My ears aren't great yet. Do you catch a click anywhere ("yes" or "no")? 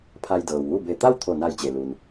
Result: no